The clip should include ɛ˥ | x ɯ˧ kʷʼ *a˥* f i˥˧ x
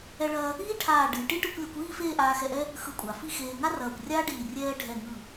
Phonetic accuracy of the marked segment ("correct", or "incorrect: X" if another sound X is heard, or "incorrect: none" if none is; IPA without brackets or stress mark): incorrect: a˩˧